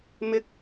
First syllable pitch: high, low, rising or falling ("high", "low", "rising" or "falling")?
rising